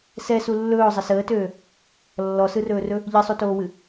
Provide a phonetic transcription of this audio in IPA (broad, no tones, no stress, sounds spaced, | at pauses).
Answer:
s ɛ s u lː ɵː zˤ ə s əː t øː | lː ɔ s ɯ r ɵː r ɵ | ʎ ɨ sˤ u t oː w ɨ